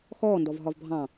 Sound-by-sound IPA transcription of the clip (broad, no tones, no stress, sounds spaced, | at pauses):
x ɔː n d ɔ v ɦ ɒ v bʱ ɑ̃